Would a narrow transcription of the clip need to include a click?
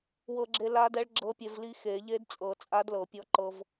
yes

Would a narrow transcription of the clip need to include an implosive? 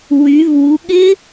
yes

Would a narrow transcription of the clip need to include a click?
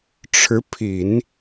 no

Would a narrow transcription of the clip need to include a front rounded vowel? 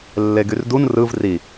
yes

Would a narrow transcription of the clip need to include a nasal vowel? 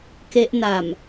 no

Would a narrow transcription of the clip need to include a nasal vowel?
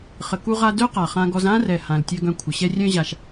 yes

